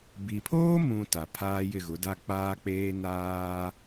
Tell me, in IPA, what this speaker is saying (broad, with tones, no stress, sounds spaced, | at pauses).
b i˨ pʰ oː˦ m ũ˨ t a˨ pʰ aː˦ j ɪ˦˨ ɣ ʊ˨˦ d a˦ k͡p aː˦ k͡p eː˦ n aː˦